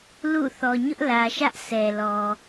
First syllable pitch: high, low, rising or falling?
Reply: falling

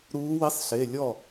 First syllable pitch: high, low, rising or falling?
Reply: rising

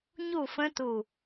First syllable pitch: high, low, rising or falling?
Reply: falling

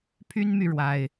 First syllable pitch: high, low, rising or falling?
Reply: high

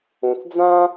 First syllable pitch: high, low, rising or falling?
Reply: low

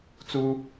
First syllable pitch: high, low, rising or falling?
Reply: high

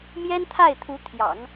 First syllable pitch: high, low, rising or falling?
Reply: high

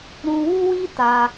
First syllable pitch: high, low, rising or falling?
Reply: high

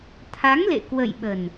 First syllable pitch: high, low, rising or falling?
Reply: rising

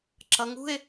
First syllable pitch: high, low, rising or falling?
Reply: rising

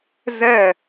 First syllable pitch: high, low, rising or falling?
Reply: falling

